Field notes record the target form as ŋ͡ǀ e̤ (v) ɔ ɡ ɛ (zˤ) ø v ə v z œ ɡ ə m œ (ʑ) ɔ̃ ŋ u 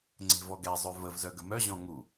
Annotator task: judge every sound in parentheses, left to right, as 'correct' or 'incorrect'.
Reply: correct, correct, correct

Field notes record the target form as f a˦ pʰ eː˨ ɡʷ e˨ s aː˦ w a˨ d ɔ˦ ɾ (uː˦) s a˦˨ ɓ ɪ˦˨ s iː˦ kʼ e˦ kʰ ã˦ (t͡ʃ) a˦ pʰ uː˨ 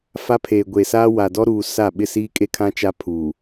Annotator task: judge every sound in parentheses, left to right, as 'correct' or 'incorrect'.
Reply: incorrect: uː˨, correct

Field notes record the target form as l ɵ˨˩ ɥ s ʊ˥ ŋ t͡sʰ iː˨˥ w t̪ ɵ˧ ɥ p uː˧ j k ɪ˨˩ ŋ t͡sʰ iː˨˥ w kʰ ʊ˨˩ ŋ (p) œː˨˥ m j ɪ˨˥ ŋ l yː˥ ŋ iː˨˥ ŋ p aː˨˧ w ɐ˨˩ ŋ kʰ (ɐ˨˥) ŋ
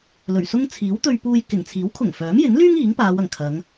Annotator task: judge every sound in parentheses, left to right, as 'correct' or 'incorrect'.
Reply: incorrect: f, incorrect: ɐ˨˧

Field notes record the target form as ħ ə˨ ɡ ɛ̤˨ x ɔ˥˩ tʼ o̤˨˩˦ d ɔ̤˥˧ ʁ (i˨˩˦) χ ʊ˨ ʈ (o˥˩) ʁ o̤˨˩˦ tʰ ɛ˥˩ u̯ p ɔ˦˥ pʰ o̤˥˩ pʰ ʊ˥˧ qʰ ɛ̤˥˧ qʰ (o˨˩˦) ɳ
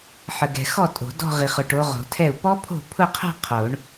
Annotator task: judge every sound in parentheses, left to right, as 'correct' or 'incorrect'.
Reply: incorrect: i˨, incorrect: o˨˦, correct

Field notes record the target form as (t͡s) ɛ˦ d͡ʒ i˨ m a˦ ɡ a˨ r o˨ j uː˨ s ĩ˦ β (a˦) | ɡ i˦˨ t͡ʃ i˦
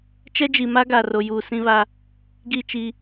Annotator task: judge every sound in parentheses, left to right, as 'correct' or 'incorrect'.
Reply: incorrect: t͡ʃ, correct

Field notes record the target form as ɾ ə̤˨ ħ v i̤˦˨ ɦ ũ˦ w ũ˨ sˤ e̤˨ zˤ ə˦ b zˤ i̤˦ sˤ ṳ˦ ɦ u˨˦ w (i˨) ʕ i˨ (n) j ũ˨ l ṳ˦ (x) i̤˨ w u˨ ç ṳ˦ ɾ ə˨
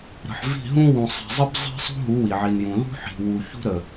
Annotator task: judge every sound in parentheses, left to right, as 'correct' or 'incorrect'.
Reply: correct, correct, incorrect: ħ

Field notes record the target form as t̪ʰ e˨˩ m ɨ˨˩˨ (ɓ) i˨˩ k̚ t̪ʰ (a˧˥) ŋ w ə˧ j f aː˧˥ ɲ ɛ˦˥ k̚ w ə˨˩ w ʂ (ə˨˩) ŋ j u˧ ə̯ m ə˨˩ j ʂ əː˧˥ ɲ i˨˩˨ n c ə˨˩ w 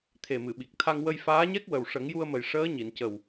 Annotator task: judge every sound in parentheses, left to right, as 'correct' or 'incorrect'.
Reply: correct, incorrect: a˧, incorrect: ə˨˩˦

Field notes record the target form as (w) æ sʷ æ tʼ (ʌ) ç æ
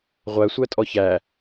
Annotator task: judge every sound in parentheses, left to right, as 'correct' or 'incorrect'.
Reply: incorrect: ʁʷ, incorrect: ɔ

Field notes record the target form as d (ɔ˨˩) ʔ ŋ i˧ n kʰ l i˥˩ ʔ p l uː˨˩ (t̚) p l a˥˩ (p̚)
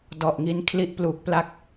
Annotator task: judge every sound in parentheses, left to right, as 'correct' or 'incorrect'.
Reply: correct, incorrect: k̚, incorrect: k̚

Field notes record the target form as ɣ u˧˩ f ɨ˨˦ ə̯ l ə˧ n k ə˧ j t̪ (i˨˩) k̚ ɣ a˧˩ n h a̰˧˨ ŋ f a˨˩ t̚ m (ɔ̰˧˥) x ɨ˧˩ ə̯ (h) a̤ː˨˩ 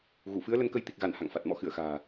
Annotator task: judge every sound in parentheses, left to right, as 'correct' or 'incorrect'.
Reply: correct, correct, incorrect: x

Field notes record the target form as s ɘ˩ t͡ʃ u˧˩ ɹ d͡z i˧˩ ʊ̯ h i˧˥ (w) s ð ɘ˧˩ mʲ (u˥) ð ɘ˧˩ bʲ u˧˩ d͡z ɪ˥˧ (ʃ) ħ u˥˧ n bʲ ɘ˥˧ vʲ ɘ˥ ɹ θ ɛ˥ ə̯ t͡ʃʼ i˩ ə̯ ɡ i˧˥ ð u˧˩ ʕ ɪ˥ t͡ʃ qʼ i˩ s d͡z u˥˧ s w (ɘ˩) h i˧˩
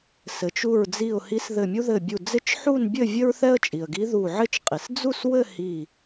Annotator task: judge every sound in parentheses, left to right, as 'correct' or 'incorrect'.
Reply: incorrect: none, correct, incorrect: t͡ʃ, incorrect: ɘ˥˧

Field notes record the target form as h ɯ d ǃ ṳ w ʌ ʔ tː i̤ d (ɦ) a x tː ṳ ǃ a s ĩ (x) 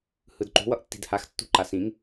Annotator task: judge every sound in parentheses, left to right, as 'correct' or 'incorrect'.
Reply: incorrect: h, incorrect: ŋ

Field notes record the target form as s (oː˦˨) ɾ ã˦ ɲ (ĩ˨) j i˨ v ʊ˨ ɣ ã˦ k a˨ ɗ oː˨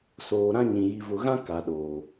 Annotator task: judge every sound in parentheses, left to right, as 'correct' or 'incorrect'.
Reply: incorrect: oː˨, correct

